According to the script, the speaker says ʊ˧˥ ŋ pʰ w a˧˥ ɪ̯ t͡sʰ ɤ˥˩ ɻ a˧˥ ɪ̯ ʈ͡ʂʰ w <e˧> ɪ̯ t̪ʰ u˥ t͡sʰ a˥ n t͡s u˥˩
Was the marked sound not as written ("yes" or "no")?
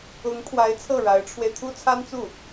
no